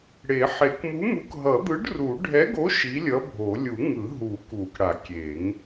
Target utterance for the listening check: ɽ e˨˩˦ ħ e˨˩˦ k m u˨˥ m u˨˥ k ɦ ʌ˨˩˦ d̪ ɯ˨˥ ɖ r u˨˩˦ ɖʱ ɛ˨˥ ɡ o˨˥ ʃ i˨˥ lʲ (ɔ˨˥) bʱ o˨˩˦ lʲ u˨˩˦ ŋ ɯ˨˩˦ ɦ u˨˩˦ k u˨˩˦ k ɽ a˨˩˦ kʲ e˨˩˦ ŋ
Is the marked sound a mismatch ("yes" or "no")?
yes